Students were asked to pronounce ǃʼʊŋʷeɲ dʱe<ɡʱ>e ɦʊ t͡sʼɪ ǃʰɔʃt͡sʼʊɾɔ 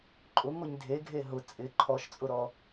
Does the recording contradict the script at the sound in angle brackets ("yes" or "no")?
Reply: no